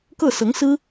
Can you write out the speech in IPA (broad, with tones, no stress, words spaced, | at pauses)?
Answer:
kɤ˥˩sɤ˧˥ŋsɹ̩˥